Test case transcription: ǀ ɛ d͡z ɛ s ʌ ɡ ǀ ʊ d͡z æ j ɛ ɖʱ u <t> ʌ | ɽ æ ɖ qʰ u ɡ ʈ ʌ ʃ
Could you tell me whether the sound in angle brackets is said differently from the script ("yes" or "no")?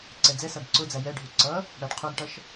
yes